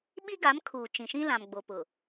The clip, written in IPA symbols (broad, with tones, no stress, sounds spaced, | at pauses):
ɓ i˦ ɡ a˨˦ m kʰ uː˨ t͡ʃ ĩ˨ ʃ ĩ˦ l ã˨ m ɡ͡b o˨ p ʊ˨